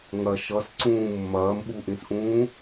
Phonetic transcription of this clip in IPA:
ŋ ɐ ʃ ʌ s ǀ ũː mː ɐː m ɓ u ʔ ĩ s ʔ ũː

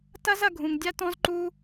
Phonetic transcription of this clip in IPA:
t ɐ˥ z ɐ˦ ɡʱ ũ˩ ŋ dʲ a˥ t ɔ̃˥ z ǃ u˦

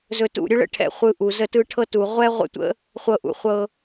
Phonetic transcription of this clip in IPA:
z ɵ˧ t ṵ˦˨ ɾʲ ɵ˦ ɭ ə̰˦ ʈʰ ɛ̰˧ χʷ ɯ˧ ʔ u˨ z ə˦˨ t ɯ˧ ʈʰ ɤ˧ t u˨ ʁʷ ɛ˦ ʁʷ ə̰˦ tʷ ə̰˦ | χʷ ɤ˧ ʔ ṵ˨ χʷ ɤ˧

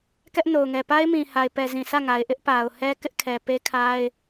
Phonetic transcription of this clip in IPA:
k ɛ˦ ʔ n o˨ ʊ̯ ŋ ɛ˨ p a˦ ɪ̯ m ĩ˨ h a˨ ɪ̯ p ɛ˨ z ĩ˨ s ä˦˨ ŋ a˨ ɪ̯ ʔ ɪ˦ ʔ p a˨ ʊ̯ h ɛ˦ k ɪ˦ ʔ kʰ ɛ˨ p e˦ kʰ a˦ ɪ̯

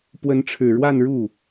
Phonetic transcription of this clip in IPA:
p w ə˧˥ n ʈ͡ʂʰ ɻ̩˨˩ ɻ w a˥˧ n ɻ u˥˩

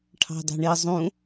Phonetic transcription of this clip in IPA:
ʈʰ ɑ̤ d ɑ̤ ɳ i zˤ ũ

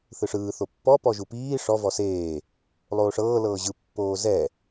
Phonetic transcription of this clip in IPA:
θ ɯ ʂ ɯː θ o pː ɔ p ɔ ʒ u p iː ʂ ɔ v ɔ s eː | lˠ oː ʂ ɤː l ɤː ʑ ɯ pː oː z ɛ

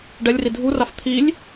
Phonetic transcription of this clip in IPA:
ɖ ɛ lʲ r i dʱ u r a f t̪ʰ i lʲ

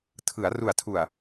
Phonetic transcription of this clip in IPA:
tʰ ɯ˩˦ a̯ r u˨˩ a̯ tʰ u˨˩ a̯

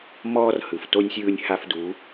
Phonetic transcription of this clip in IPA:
m ɔː˦ r h ɯ˨ f t o˦ nʲ sʲ ɯː˦ nʲ h a˦ f d u˨˦

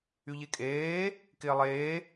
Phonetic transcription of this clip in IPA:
y ʎ e kʼ eː | k ɪː lˠ eː

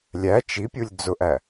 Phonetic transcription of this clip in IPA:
lʲ æ t͡ʃ i pʲ u lʲ d͡z ʊ ʔ æ

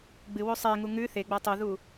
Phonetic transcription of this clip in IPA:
ɡ͡b ɨ w o sˤ e ŋ u ŋ ʉ θ e ɡ͡b ɐ tˤ u ð u

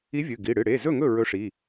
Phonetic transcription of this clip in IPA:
i˧˥ vʲ ɨ˩˧˩ ɡ i˩˧˩ ɽ ɨ˩˧˩ ɽ e˩˧˩ z ɵ˥˩ ŋ ɵ˥˩ ɹ ɵ˧˥ ʂ i˩˧˩

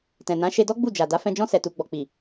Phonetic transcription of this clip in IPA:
t ɛ̃˨ n ã˨˦ ʃ e˧ d ɔ˦ ɡ͡b u˦˨ d͡ʒ a˨ d a˨˦ f ɛ̃˧ d͡ʒ ɔ̃˦ s ɛ˧ t u˧ ɡ͡b ɔ˨ k͡p i˨

